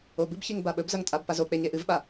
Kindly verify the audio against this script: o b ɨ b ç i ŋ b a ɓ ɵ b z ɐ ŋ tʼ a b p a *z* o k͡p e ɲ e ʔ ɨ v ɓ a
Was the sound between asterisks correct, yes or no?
yes